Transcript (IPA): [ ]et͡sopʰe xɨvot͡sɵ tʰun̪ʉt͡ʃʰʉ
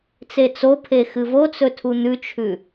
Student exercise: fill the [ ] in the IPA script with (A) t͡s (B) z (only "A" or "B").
A